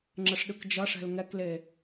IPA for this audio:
ŋ͡ǁ ə ʂ ɗ ɯ k d͡ʒ ʌ ʂ ɛ̤ l ŋ ɛ k l e

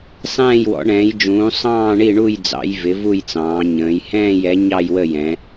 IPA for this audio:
sˤ ɛ̃ː˦˨ j w ɔ̰˩˧ ɳ ɛ̃ː˩˧ j d͡ʒ ũː˩˧ sˤ ɑ̃ː˦˨ ɳ i˦˨ ɳ u˦˨ j d͡z ɑ̰˩˧ j v ɪ˩˧ v u˦˨ j t͡s ɑ̃ː˩˧ ɲ ə̃ː˩˧ j h ɛ̃ː˦˨ j ɛ˩˧ ɲ ɑ˦˨ j w ə˦˨ j ɛ̃˩˧

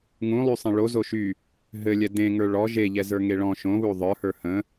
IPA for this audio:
ŋ ũ lˠ y sˤ ẽ ɭ o z o ʃ y | ɦ ɘ lʲ ɛ d ẽ ŋ ə˞ ɭ ɔ ʒ e ʎ ɛ z ə˞ ŋ e ɭ ɔ̃ ʃ õ β u ðˤ ə˞ h ə˞ h ə̃

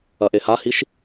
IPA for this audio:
ɐ ʔ e h a h i ʃ

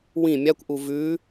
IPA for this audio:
w ĩ mʲ a kʷ ʔ u v ʉ

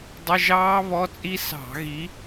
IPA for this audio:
dˤ ɪ˧˥˧ ʒ ɑː˦˥ β ɔ˧˥˧ t͡sʼ i˦˥ s ɑ̤˧˩˧ ɣ i˨˦

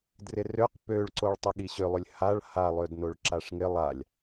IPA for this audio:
d r ɪ r ø q p ø ɭ ǀ o ɭ tˤ ɪ ɠ i ɕ ʏ lˠ ʏ lʲ h a ɭ h a lˠ ø d n o ɭ ǁ a ʂ ŋ ɪ lˠ a lʲ

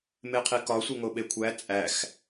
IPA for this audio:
m e qʰ i k ɒ sʷ e ŋ o ɓ e kʷʰ æ t͡sʼ æ x

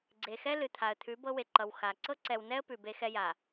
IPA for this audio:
ɡ͡ǀ e˨ x ɛ˦ l ɨ˨ t̪ʰ a˨ ə̯ t̪ʰ ʉ˨˦ b ɤ˦ w e˨ ǃ ʌ˨ w x a˨ ǀ ɤ˦ ǀ ɛ˨ w n ɛ˦ ə̯ p ʉ˨ b e˦ x ɛ˦ j a˨

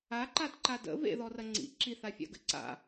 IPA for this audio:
a ǃ a d ǃ a d ə̰ v ḛ ð ɔ r ɐ ŋ͡ǀ ḭ ǁ i θ a fʲ a̰ ɡ ə̰ ǀ a̰

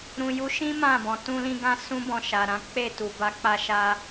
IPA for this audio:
ɾ ũ˨ j u˨˦ ʃ ĩ˦ m ã˦˨ b ɔ̃˨ t ũ˧ l ĩ˧ ɡ ã˧ s ũ˦ b ɔ̃˧ ʃ a˨ ɾ ã˨˦ k͡p e˦˨ t u˨ b a˧ k͡p a˦ ʃ a˦

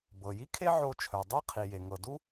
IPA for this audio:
b ɤ˩ j i˥ kʰ e˥ ʕ o˧ t͡ʃʰ œ˩ dˤ e˥ qʰ i˩ j e˩ ŋ ɤ˩ d u˥

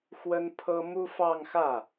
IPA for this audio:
x w ə˥ n pʰ ɤ˥ m u˥ f ɑ˥˧ ŋ x ä˥˩

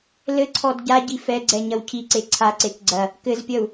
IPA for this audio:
l ɘ ǀʰ ɔ d ɟ a ɟ i f ɛ ɡ͡ǀ ɛ ɲ ɐ w cʰ i ǀ e ǀʰ a ǀ e k ɡ͡ǀ ɐ | k ɘ z pʲ ɐ u̯

